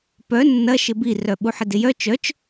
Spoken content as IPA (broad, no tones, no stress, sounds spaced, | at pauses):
p œ nː ɐ ʃ ɪ b i r œ ɓ u ħ ɪ d ɪ j œ t͡ʃ œ t͡ʃ